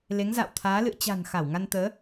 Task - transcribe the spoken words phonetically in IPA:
l e˨˦ ŋ z a̰ː˧˨ w t̪ʰ aː˨˦ l ɨ̰˧˨ ə̯ t͡ɕ a̤˨˩ n x a˧˩ w ŋ a˧ n t̪ əː˨˦

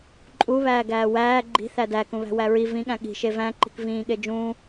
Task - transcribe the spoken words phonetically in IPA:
ǃʼ u β æː ɡ æː w æː ɡ͡ǃ i̤ θ æ d æ k ũ β æ̤ w æ ɹ i v ĩ ɠ æ̃ ɠ i̤ ʃ e v æ̃ ǃ i̤ k v ĩː ɠ e d͡ʒ ũː

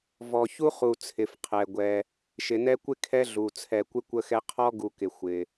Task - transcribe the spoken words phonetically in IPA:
v ɔ˨ ç u˥ χ u˨ t͡sʰ ɪ˩ f qʰ ɛ˩ ɡʷ ɛ˨ | ʃ ɪ˩ n ɛ˦ kʷ ɪ˥ kʰ ɛ˦ ɮ u˩ t͡sʰ ɛ˨ kʷ ɪ˥ kʷ ə˦ x ɛ˦ qʰ ɔ˥ ɡ u˨ k ɪ˩ xʷ ɪ˩

